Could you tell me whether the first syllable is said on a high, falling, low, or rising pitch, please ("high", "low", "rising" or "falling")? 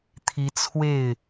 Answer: rising